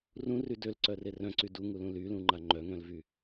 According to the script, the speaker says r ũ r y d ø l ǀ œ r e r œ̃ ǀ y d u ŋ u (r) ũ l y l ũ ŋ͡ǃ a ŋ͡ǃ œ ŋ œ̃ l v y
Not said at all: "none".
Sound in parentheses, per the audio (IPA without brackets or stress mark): l